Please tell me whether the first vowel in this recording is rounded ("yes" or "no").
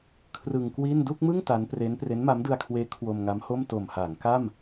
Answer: no